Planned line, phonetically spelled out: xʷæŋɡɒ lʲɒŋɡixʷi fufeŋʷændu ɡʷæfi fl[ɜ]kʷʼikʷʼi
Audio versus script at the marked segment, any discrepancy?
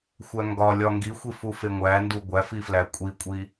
yes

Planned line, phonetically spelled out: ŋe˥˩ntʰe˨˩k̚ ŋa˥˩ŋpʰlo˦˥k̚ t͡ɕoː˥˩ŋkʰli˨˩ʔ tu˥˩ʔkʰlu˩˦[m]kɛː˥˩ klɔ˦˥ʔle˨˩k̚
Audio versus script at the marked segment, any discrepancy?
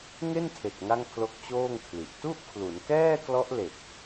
yes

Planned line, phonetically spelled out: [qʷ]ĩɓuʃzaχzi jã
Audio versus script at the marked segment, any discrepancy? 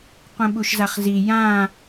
no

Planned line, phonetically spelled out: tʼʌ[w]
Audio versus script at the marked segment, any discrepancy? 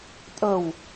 no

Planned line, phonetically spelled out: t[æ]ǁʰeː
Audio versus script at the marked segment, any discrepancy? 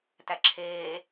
no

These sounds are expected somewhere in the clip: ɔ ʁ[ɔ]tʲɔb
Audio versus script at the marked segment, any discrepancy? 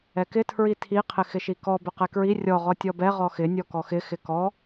no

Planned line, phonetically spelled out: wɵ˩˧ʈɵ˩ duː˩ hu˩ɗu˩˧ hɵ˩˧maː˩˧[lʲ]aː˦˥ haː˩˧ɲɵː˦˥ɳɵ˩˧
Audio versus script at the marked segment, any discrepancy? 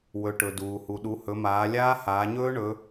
no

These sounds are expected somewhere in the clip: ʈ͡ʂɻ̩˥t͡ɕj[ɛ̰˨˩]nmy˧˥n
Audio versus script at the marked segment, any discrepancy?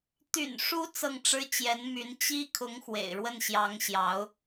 yes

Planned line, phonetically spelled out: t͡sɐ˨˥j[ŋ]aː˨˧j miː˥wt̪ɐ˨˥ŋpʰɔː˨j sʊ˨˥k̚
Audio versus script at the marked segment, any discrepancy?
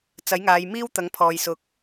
no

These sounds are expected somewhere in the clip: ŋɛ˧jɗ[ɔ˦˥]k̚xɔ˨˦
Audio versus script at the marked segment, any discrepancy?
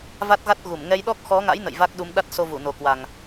no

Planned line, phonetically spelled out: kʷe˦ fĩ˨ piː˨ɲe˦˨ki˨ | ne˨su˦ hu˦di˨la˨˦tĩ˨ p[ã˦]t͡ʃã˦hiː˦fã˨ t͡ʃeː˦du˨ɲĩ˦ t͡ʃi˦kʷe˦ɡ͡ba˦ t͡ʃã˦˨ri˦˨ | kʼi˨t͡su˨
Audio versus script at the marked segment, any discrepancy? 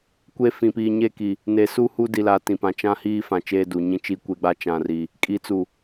yes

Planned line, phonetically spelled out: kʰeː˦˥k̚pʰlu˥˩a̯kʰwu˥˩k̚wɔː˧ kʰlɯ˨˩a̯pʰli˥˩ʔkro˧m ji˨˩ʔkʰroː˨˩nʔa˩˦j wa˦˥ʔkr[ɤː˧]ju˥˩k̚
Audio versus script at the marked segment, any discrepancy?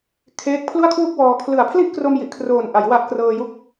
no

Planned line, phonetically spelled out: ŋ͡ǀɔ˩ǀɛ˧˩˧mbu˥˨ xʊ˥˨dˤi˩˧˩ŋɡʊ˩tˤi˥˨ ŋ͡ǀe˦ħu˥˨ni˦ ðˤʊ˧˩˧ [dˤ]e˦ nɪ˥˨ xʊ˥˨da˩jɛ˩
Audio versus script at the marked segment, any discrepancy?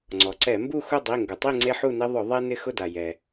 yes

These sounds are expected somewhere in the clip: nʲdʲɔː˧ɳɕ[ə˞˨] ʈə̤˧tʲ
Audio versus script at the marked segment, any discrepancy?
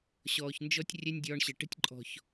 yes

